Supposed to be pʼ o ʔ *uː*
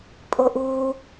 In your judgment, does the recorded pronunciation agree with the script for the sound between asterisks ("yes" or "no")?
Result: yes